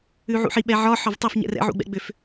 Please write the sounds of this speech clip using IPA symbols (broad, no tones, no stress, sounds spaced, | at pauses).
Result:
ʉ ʕ ṵ ħ i ɓ ɛ ʕ ɒ ħ ɒ v tˤ ɛ f ɲ ɛ̰ r ɛ̰ ʕ ṵ ɡ͡b ɛ̰ ɡ͡b ʏ f